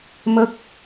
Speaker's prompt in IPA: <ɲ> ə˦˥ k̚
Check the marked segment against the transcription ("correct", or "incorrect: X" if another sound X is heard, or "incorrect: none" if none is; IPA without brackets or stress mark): incorrect: m